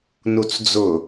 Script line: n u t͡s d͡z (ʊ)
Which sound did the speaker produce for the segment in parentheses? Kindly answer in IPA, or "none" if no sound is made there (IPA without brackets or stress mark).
ʊ